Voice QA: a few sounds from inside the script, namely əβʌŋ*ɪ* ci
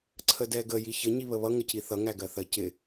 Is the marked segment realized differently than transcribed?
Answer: yes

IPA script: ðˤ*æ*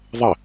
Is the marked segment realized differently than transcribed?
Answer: yes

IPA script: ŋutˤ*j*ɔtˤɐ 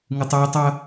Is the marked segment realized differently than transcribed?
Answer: no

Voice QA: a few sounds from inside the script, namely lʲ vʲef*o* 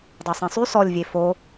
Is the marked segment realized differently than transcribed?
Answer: no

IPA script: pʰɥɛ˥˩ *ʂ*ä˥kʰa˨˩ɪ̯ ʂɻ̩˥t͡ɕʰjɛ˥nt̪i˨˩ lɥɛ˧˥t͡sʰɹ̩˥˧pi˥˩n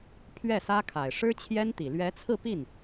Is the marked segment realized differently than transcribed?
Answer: yes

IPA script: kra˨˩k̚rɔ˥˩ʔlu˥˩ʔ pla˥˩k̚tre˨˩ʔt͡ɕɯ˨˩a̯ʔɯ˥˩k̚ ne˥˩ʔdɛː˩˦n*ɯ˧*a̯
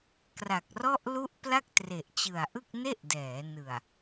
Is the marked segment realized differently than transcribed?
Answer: yes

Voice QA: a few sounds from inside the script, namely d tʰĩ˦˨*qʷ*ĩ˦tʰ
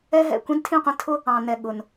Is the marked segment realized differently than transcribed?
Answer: no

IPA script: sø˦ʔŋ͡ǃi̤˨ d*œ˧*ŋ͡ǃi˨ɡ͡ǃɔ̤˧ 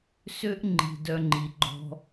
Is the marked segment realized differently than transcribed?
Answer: no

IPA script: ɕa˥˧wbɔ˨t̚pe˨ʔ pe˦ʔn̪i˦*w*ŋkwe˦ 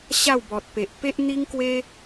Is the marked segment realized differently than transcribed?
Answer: yes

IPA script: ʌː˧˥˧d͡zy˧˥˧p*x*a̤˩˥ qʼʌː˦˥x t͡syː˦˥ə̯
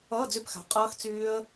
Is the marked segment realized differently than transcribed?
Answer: no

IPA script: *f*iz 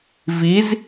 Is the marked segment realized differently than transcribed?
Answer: yes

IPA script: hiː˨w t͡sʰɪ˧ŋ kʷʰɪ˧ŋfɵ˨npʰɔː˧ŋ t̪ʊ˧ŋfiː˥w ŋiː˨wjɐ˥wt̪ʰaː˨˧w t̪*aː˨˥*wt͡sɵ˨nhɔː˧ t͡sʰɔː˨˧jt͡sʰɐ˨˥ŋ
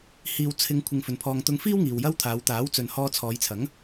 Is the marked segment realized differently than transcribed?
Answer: no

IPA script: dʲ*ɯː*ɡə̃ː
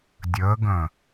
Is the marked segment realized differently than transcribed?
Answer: yes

